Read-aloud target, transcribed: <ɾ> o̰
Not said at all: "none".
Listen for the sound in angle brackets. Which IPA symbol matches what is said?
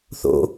θ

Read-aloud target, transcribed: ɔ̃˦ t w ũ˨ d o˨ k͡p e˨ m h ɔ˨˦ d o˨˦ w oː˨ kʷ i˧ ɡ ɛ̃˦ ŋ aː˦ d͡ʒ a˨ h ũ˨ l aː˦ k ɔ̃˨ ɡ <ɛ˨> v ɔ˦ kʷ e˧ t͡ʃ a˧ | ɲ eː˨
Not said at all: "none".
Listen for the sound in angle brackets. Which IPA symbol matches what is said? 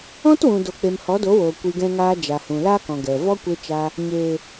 ɛ˨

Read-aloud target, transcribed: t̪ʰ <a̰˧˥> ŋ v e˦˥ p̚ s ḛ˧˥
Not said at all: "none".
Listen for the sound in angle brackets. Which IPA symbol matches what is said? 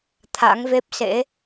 a̰˧˥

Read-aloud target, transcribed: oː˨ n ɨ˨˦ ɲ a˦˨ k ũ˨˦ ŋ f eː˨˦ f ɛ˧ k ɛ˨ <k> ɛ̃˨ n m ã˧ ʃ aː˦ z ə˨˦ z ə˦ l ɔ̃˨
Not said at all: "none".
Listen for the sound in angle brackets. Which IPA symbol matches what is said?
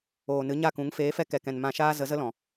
k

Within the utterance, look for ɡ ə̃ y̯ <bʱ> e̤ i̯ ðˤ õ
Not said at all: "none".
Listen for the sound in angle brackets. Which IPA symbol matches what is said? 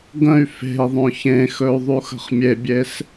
f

